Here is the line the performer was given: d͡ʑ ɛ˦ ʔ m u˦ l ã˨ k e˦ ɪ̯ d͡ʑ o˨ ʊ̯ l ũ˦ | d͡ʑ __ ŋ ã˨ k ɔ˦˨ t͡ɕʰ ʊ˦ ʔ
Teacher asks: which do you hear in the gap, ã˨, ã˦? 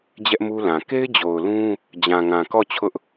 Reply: ã˨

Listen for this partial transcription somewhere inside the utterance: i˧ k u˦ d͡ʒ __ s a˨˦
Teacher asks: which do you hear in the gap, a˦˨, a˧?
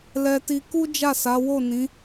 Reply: a˦˨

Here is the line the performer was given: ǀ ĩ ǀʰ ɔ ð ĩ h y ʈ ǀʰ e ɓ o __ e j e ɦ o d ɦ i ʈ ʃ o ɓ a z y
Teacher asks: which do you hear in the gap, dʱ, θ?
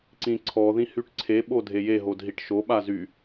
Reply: dʱ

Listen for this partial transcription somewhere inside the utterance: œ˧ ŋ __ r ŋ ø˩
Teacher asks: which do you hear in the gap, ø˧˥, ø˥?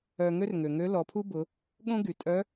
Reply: ø˥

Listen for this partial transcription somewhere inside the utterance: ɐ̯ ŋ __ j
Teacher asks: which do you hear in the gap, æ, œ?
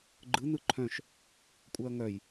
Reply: œ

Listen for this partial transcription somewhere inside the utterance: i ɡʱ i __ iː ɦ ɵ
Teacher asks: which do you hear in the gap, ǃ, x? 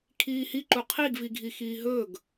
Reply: x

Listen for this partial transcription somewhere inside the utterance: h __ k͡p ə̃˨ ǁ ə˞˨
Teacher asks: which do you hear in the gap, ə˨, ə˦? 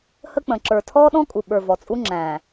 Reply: ə˦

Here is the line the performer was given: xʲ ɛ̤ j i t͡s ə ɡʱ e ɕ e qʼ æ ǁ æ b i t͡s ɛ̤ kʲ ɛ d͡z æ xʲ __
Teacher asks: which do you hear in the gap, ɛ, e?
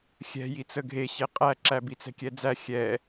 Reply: ɛ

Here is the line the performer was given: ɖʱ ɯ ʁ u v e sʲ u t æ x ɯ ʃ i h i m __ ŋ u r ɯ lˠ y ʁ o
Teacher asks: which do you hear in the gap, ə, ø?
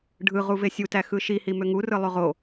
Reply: ø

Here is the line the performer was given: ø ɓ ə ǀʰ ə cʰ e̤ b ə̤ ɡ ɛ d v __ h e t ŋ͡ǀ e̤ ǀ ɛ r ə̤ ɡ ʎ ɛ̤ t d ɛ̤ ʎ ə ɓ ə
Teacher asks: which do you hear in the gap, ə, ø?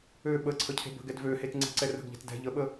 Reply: ø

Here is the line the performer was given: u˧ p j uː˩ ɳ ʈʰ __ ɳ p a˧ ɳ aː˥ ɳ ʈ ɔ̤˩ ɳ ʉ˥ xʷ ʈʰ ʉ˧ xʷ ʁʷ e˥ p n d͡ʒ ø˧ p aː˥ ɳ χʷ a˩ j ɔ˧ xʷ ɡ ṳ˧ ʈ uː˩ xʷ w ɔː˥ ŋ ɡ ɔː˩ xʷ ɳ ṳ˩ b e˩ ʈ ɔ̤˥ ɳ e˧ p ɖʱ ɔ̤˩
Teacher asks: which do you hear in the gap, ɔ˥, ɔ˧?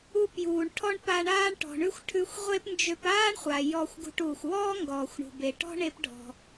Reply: ɔ˥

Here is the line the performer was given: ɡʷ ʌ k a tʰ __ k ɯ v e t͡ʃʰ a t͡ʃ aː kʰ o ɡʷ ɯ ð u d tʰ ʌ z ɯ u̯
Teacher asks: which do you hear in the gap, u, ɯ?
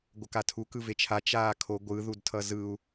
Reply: u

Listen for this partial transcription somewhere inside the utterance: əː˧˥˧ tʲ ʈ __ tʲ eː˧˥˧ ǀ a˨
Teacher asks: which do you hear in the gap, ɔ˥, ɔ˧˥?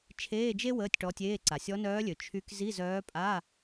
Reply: ɔ˧˥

